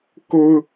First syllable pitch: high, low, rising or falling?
high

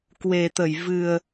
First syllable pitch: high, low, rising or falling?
low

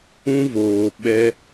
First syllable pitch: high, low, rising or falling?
high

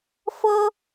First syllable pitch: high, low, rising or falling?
high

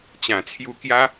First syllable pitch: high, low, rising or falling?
low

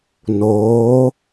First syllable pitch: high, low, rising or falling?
rising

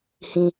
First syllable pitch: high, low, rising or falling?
high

